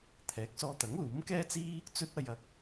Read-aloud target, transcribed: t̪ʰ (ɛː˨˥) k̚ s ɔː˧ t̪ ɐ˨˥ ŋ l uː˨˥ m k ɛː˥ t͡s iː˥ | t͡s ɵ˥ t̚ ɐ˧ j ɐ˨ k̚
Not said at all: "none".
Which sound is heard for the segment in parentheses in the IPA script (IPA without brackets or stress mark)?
ɛː˨˥